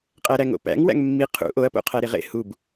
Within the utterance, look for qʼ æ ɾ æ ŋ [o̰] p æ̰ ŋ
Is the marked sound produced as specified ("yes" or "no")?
yes